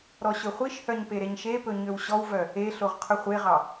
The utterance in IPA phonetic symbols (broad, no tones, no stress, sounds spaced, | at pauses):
ɾ ɔ ɕ ɵ χʷ i ʃ h œ ɲ p e ɾ e ɲ ʃ e p ɵ ɲ ø w ɕ ɔ w v œ | e ɬ o ʁ qʰ ɵ χʷ e ʁ ɑ